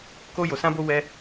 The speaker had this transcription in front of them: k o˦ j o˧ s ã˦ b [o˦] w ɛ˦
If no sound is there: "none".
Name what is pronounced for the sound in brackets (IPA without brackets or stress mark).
o˦